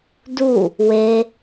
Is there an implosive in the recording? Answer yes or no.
no